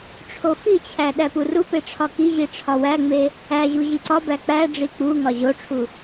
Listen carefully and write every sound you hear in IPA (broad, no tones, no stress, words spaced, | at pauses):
ʈ͡ʂʰofit͡ɕʰæ ɗæpurupe ʈ͡ʂʰɒkiʑi ʈ͡ʂʰɒwæŋ͡me | æʑu ʑiǀɒbæ k͡pæ ɖ͡ʐik͡puŋɒ ʑoʈ͡ʂʰu